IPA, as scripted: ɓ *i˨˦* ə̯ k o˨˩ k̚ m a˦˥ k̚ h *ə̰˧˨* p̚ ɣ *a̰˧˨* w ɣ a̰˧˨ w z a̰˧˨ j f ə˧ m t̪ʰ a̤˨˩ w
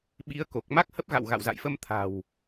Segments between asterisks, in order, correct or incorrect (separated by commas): correct, incorrect, correct